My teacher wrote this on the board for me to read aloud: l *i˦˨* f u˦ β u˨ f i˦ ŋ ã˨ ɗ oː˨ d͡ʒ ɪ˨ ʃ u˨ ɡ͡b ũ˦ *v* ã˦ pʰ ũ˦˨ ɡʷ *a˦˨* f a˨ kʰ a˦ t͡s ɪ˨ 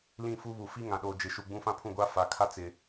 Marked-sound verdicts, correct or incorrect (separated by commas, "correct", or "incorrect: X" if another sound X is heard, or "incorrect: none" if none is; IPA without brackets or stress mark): incorrect: ĩ˦˨, incorrect: f, incorrect: a˦